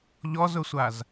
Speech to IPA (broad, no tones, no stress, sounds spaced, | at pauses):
ʎ ɔ z ʊ sʷ a z